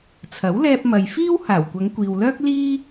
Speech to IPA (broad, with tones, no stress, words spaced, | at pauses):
t͡sʰɐ˨˥wlɛː˧p̚mɐ˨jfiː˥w haː˨˩wkʷɐ˨˧ŋkʷiː˨wlœː˥k̚ liː˥